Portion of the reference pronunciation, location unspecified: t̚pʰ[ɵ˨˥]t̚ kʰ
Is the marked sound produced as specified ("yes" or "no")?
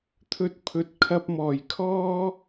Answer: yes